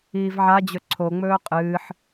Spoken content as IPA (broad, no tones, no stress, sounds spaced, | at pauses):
iː v ʕ a d͡ʑ ɵ ǀʰ o ŋ͡m ɵː qʼ ɨː ħ